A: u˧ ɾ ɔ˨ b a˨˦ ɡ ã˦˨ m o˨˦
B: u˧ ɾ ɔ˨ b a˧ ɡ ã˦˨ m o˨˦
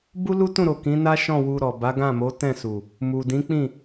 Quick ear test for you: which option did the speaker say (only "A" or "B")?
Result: A